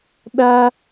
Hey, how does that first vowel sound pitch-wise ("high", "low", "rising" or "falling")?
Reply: high